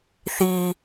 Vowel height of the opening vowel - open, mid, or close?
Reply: close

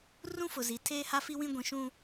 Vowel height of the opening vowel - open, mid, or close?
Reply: close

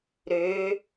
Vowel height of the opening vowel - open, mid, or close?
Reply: mid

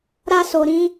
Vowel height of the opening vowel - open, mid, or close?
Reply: open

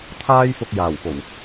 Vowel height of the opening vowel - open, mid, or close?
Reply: open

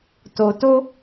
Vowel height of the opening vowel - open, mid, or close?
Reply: mid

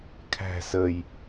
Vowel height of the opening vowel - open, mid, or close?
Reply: open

